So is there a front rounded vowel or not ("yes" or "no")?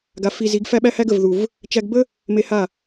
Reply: no